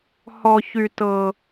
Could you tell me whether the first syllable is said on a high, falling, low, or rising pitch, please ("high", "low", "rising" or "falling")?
high